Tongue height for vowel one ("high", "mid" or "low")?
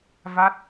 low